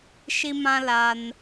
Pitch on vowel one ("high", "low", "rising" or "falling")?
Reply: high